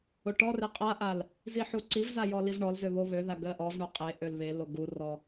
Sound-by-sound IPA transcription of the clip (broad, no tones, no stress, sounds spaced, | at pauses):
o ʈ ɔ r e qʼ a ʔ a l | z i ħ u ǀ i v z a j ɔ l i v ɳ ɔ l z ø β o β ø ð a ɡ ɜ ʔ ɔ v ɳ o qʼ e ʔ ø l β e l o ɡ u r ɔ